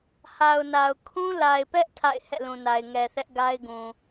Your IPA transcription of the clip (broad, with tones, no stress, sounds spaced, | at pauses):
h a˨ ʊ̯ n a˨ ʊ̯ kʰ ũ˦ l a˨ ɪ̯ p ɛ˦ ʔ tʰ a̰˦˨ ɪ̯ h ɛ̰˦˨ l ũ˨ n a˨ ɪ̯ ŋ ɛ˨ θ ɛ˦ ʔ ɡ a˦ ɪ̯ ɡ ũ˨